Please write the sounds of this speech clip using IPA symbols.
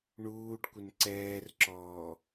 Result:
ɳuːɖ kʷɪnǀɛːrǁɔː

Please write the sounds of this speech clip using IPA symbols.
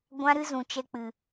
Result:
ɡʷã˦ɾɨ˦zũ˨t͡ʃɛ˧ k͡pɨ˨

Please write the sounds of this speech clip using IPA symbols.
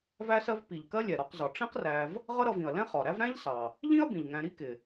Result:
væ˦sɜ˦v pi˩ʎkɜ˦lʲɛ˩ ɾɒ˨qzɒ˩ ʈ͡ʂĩ˦qræ˨v | ʁʌ˦ɾʌ˨vĩ˩ɐ̯ lɛ̃˥χɒ˩ɾæ˥v ɾæ̃˥ʎsɑ˩ | ʎĩ˥ɐ̯ bĩ˩ʎŋæ̃˨ ɾi˥kɪ˩

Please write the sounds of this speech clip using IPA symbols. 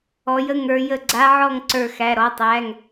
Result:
ɔ˩˧jə˧˩ŋə˞˩˧ jə˧˩ɡ͡ǀa˧˥ʕɔ˥˩ŋ ǀə˞˧˩xæ˩˧˩ ɾɔ˩˧˩tˤæ˩˧˩ŋ

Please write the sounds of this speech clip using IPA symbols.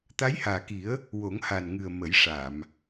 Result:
t̪a˧˥jhaː˨˩ki˨˩˦ə̯ | wo˨˩˦ŋha˨˩nŋɨ˨˩ə̯ mə˨˩˦j ʂa˨˩˨m

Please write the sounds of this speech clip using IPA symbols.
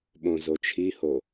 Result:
ɓõzot͡ʃʰiho

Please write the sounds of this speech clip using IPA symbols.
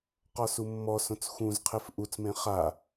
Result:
qɔsumːɔsõt͡s xũzqʰef ʔut͡smẽ χa

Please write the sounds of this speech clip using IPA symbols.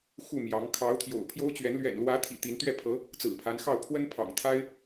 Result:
xu˥˩mjɑ˧˥ŋ kʰɑ˧˥ʊ̯t̪ʰjo̰˨˩ʊ̯ pʰjo˥ʊ̯t͡ɕɥɛ˧˥n lɥɛ̰˨˩nlwä˧˥t̪ʰḭ˨˩ t̪i˧˥n t̪ɥɛ˥˩pʰɤ˧˥ | t͡sɹ̩˨˩pʰa˧˥nxɑ˥˩ʊ̯ pʰwə˥npʰɑ̰˨˩ŋt̪ʰa˥ɪ̯

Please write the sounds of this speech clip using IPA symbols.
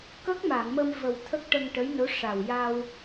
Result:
kə˦˥k̚ ma˨˩˨ŋmə˧m və˨˩w t̪ʰə˦˥k̚ʈə˧ŋʈə˧˥jno˧˥ ʂa˨˩wja˧w

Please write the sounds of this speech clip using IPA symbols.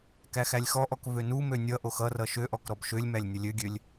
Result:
kæxælʲxɔʔɔk vønumø nʲʌʔox ʌrʌ ʃøʔɔk ɾɔbʃølʲmælʲ nʲʌlʲøɡʲølʲ

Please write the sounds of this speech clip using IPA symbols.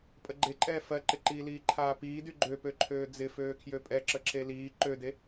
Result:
pʼəɡ͡ǃeǃʼɛː fɜǃɪǃiːliː ǃʰaːpiːdy ɡ͡ǃøpøǃʰøː d͡zɪføːkʰjø pʼɛǁəǁe liː ǃøde

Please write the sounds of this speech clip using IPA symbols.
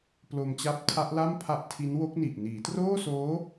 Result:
plo˧mt͡ɕa˦˥p̚ tʰa˦˥ʔla˥˩m pʰa˦˥ʔtʰi˦˥nwo˦˥k̚ni˨˩ʔ niː˩˦troː˥˩soː˦˥

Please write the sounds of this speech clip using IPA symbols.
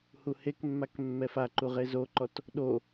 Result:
huhekmːak mːɛfaǃu ʁezoǃɔt | ɗo

